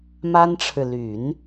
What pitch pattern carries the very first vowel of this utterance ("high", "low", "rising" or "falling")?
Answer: high